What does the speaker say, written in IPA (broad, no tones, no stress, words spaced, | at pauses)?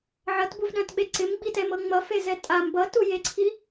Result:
ʕʌtbuvɗœ̃tɓe ǀɪmɡ͡bitɛmɤ ŋ͡mʌfezɛ tʼam bʌtujeǀʰi